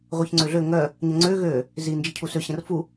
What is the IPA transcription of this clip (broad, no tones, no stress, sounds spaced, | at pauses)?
ʁʷ ɛ ç ŋ͡ǀ ø ɮ ø ŋ œ | ɲ ə ŋ͡ǀ ø ɣ ø | z i n d͡ʒ i cʰ u s ø ɕ ə̃ r f u